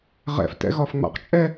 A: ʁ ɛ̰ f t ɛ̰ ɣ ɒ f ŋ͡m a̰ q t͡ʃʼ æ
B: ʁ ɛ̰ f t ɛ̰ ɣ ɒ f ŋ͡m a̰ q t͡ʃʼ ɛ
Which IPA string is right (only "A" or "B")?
B